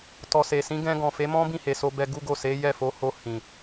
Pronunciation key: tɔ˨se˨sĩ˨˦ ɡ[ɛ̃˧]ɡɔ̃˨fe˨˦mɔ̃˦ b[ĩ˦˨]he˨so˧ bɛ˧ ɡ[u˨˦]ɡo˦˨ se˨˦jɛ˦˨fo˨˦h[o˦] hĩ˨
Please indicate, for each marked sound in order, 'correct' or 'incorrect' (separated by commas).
correct, correct, incorrect, incorrect